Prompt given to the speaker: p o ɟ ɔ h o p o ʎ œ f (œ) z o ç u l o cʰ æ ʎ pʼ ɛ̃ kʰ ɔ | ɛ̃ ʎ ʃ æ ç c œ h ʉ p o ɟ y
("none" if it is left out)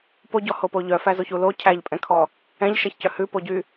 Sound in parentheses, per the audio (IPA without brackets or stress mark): æ